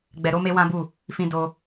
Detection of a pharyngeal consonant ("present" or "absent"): absent